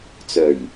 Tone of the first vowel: low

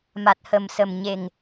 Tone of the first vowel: low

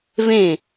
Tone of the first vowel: falling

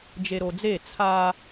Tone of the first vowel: low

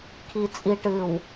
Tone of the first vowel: low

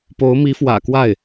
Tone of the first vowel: rising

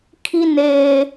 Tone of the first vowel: high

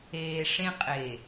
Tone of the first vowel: low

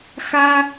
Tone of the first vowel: high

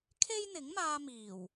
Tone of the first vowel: high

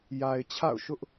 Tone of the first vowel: low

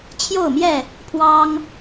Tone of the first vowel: falling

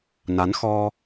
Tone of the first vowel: rising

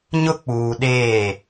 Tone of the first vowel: high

